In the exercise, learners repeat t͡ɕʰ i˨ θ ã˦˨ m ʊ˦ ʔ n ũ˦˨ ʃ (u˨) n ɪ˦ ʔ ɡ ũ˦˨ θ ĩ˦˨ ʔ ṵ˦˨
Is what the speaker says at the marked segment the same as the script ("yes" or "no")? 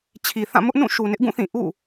yes